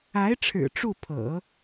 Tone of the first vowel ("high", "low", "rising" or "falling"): rising